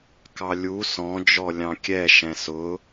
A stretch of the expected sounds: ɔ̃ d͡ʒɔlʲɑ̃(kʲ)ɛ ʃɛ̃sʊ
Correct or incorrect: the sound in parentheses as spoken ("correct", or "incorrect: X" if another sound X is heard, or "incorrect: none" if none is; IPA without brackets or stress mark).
correct